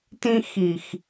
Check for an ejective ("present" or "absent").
absent